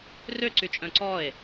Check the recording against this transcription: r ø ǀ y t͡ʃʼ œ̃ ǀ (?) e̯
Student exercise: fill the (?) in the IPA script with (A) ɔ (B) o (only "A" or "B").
A